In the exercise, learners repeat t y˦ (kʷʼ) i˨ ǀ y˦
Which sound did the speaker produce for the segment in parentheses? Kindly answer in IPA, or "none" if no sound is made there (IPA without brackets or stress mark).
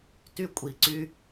kʷʼ